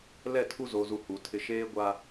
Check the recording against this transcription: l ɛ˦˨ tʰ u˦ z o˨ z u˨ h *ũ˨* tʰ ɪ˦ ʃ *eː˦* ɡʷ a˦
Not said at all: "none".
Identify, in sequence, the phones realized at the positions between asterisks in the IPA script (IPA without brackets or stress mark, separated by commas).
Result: u˨, eː˦